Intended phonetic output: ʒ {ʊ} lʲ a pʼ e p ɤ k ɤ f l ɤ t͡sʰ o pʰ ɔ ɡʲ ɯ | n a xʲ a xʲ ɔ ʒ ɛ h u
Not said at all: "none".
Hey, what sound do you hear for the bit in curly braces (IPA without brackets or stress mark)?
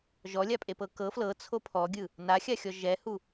ɔ